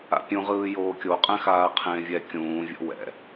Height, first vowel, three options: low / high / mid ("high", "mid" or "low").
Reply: low